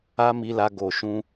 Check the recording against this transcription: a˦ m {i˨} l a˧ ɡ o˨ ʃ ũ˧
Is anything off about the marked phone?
yes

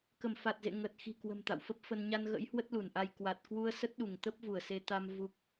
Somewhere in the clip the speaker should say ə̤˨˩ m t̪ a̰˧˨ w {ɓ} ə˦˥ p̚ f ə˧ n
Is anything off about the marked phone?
yes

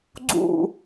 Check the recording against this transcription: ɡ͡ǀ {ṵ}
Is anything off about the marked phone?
no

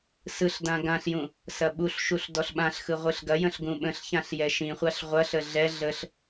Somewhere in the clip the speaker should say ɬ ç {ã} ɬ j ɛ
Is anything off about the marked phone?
no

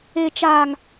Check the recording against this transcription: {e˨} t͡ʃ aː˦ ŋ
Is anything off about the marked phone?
yes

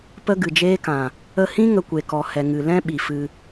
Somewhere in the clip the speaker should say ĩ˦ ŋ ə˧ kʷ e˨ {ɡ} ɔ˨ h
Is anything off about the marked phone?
yes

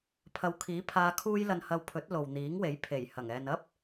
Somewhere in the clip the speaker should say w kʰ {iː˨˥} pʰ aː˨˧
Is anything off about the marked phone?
no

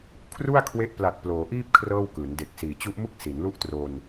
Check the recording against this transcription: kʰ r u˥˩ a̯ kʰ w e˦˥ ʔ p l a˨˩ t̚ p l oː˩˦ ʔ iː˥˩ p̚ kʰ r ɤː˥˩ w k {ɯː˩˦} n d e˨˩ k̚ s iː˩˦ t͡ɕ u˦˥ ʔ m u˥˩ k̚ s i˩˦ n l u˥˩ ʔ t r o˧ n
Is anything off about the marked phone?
no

